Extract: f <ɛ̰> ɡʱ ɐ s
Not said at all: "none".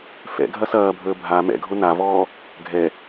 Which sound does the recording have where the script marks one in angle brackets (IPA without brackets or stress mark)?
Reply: ɛ̰